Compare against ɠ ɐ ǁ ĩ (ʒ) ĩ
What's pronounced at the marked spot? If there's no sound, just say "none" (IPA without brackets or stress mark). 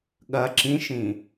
ʃ